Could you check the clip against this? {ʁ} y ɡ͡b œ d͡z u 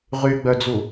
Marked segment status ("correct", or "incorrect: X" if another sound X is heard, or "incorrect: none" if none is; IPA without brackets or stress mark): correct